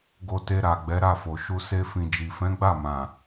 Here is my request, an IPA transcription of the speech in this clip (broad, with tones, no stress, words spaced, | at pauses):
ɡo˧te˧ɾa˨ ɡ͡bɛ˨˦ɾa˦˨fo˨ ʃu˧ se˧ fĩ˨d͡ʒi˨fɛ̃˨˦ ɡ͡ba˦˨mã˨